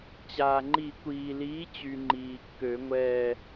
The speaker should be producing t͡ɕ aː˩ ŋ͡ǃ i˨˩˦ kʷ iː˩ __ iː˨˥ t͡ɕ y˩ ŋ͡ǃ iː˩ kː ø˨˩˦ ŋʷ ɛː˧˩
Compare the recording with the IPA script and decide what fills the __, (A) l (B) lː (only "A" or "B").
A